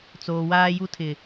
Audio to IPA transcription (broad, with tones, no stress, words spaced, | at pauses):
t͡soː˨waː˦ju˦tʰɪ˨